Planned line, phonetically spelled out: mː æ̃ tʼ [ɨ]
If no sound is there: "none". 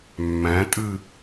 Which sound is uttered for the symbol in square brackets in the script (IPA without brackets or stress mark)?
ɨ